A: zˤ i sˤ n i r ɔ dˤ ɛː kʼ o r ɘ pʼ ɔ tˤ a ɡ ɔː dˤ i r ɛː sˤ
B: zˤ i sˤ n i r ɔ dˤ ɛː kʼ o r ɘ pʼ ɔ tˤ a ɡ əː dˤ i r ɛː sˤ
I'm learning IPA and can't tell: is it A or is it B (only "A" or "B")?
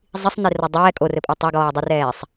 A